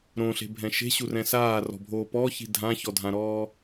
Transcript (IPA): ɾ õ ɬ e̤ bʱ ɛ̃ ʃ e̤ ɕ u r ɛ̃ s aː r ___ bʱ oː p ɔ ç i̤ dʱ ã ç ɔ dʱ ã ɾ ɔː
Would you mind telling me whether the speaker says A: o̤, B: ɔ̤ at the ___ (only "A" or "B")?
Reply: B